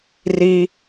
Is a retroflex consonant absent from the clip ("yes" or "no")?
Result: yes